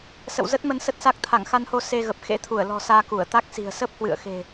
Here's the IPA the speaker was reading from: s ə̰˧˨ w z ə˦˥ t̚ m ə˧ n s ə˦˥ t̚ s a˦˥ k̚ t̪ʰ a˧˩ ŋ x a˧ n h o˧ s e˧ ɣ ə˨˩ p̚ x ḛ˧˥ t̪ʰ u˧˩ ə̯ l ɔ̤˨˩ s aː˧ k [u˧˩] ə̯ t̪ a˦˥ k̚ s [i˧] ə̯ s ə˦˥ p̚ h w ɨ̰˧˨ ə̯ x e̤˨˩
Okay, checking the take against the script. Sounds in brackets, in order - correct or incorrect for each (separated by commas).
correct, incorrect